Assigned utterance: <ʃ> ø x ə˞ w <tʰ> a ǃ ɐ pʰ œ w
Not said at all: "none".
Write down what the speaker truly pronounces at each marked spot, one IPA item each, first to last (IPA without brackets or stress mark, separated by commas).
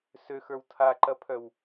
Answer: s, tʰ